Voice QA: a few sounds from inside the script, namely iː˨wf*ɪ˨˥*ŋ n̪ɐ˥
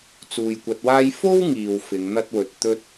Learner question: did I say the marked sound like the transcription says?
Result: no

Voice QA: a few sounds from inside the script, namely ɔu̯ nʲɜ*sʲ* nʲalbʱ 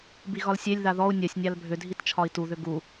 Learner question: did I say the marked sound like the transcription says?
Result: yes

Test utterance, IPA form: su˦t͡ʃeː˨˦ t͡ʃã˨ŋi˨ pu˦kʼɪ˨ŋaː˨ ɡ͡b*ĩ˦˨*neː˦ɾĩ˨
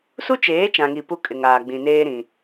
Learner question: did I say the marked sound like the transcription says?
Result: no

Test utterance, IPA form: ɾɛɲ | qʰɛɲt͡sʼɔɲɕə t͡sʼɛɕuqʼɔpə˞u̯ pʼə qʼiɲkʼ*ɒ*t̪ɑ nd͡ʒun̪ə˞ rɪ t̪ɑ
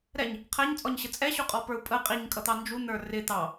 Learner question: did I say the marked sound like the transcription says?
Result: no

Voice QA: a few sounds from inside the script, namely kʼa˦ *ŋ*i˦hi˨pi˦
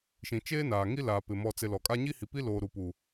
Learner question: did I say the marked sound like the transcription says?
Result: no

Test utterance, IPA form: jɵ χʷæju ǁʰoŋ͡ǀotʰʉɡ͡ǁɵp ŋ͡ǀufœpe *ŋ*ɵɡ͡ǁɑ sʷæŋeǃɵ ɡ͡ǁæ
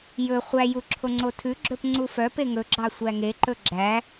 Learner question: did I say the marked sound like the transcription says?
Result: yes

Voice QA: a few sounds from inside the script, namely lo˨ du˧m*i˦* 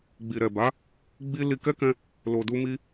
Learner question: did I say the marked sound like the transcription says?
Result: no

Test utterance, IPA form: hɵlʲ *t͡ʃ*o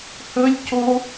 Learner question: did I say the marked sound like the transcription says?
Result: no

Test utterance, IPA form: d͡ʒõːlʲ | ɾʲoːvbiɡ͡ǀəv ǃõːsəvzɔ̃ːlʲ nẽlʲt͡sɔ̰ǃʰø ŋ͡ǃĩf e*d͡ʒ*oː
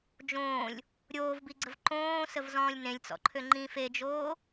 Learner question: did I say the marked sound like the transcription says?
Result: yes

